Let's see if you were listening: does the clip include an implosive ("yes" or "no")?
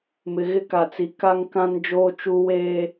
no